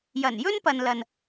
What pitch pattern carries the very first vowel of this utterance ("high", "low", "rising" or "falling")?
low